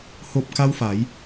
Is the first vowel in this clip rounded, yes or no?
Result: yes